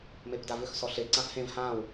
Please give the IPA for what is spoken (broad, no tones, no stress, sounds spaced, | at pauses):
m e p d a v ʏ x s ɔ ɬ e ǀ ã f h ẽ v h ãː w